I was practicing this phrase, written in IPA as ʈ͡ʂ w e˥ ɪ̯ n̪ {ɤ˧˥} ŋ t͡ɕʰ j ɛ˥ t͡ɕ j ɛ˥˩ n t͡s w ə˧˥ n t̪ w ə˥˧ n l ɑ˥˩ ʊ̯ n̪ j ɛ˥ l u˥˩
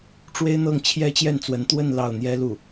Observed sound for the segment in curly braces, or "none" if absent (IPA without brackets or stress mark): ɤ˥˩